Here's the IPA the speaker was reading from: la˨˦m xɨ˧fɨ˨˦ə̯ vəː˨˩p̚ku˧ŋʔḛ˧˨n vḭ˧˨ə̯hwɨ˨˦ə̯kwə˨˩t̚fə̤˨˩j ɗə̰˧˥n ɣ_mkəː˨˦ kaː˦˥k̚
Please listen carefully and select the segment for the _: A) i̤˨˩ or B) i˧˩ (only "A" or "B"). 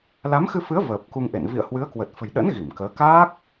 B